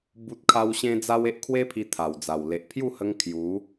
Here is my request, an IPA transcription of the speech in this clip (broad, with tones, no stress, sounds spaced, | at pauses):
b u˦ t̚ kʰ a˦ w ɕ ẽ˦ d͡z a˦ w e˦ ʔ kʰ w e˦ pʰ i˧ t̪ʰ a˨˩ w d͡z a˨˩ w l e˨ ʔ pʰ j u˥˧ h ə˧ ŋ kʰ j u˨˦